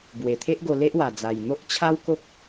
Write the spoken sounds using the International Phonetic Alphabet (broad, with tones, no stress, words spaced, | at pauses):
bwe˨˩t̪ʰe˦ʔ ɡo˧le˦ʔwa˨˩d͡za˨˩j n̪o˦ʔt͡ɕʰa˦wko˦k̚